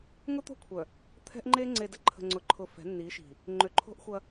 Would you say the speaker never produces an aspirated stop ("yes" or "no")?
no